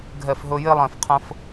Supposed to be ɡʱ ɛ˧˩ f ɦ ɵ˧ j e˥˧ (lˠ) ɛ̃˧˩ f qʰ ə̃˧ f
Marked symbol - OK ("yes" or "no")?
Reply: yes